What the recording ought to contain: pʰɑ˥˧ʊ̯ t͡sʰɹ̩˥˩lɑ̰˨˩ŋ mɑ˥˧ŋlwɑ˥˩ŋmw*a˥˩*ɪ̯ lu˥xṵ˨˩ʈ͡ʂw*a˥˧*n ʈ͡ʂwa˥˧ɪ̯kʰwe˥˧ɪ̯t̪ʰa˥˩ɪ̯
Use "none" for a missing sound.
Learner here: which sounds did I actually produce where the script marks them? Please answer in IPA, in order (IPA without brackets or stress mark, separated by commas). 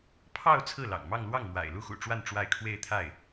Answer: a̰˨˩, a˥˧